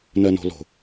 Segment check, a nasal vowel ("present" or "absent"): absent